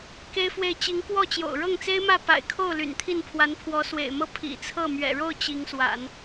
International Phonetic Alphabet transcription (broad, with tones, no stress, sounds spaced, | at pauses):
k e˥ ɪ̯ f w e˥˩ ɪ̯ t͡ɕ i˧˥ ŋ k w ɔ˥˩ t͡ɕ j o̰˨˩ ʊ̯ ɻ ɤ˥˩ ŋ t͡s e˥ ɪ̯ m ä˥˩ p a̰˨˩ ɪ̯ kʰ o˥˩ ʊ̯ l y̰˨˩ n t̪ʰ i˥˩ n pʰ w a˧˥ n pʰ w ɔ˧˥ s w ḛ˨˩ ɪ̯ m ɤ˥ pʰ ḭ˨˩ t͡sʰ ɤ˥˩ m ɥ ɛ̰˨˩ ɻ o˥˩ ʊ̯ t͡ɕ i˧˥ ŋ s w a̰˨˩˦ n